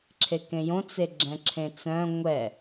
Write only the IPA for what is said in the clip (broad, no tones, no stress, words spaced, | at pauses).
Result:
ǁʰekẽjõ t͡seɡ͡ǁɛ̃ǁʰẽt͡sœ̃ ŋʷɛ